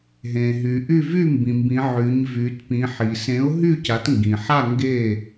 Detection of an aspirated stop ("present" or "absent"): absent